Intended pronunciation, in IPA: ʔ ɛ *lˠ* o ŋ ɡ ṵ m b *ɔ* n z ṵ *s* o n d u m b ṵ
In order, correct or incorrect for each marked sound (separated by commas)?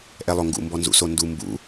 correct, correct, correct